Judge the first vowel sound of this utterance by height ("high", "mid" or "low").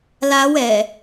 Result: low